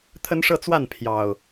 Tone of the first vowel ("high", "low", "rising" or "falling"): high